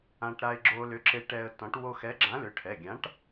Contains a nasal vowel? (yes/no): yes